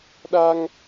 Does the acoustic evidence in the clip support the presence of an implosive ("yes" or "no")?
yes